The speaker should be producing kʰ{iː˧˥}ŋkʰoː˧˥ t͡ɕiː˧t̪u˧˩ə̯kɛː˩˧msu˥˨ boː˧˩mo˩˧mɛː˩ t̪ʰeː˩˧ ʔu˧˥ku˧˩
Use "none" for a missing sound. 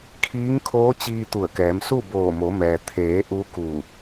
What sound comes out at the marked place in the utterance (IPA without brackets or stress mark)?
iː˧˥